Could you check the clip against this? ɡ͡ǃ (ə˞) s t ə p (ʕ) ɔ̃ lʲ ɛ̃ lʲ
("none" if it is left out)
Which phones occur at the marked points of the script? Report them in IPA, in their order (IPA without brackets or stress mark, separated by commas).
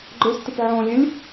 ə˞, ʕ